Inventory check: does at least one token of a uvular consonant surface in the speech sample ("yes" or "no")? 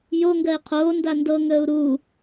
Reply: yes